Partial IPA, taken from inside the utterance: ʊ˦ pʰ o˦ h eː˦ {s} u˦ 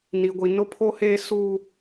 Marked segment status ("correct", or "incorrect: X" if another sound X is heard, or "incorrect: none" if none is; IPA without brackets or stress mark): correct